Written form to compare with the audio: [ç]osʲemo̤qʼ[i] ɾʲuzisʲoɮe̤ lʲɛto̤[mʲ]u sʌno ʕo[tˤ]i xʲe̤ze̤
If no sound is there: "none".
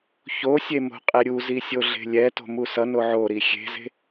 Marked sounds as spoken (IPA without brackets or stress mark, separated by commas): ç, e, m, ɾ